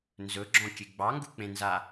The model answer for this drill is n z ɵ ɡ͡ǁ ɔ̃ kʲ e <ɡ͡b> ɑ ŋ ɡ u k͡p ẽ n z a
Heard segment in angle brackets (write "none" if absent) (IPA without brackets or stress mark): ɡ͡b